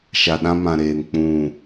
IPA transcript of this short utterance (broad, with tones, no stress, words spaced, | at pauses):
ʃa˨ɗã˦mã˨ɾeː˨n k͡pũ˦˨